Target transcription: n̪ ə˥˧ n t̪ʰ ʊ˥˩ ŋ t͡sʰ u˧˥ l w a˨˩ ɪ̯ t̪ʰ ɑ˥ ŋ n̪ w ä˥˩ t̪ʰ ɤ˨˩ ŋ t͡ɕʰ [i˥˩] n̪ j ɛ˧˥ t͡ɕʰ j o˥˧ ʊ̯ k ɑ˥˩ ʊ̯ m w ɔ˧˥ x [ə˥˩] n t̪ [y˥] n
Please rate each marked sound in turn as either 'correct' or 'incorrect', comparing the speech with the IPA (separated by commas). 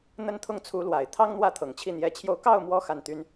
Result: correct, incorrect, correct